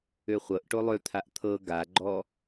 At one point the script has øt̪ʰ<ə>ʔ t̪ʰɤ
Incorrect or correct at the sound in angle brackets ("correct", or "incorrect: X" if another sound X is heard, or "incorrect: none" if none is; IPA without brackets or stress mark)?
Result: incorrect: a